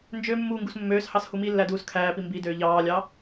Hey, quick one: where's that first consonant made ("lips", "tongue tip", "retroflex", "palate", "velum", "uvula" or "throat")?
tongue tip